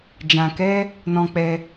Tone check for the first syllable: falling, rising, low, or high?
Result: low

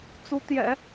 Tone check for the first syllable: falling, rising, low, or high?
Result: rising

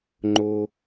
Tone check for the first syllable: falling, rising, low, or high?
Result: high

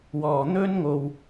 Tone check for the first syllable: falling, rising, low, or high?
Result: low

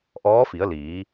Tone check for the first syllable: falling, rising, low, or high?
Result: rising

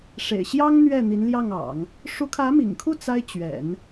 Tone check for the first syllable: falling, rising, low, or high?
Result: low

